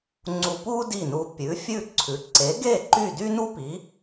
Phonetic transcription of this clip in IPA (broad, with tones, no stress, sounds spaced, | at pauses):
ŋ͡ǀ u˧ p u˥ d i˥˩ n u˧ pʲ ʉ˩˥ fʲ ʉ˥˩ ǀʰ ʉ˩˥ ǀ e˩˥ ɡ e˥˩ ǃ y˥˩ d y˥ n u˥ p i˩˥